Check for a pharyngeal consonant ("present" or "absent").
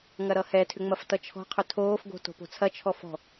absent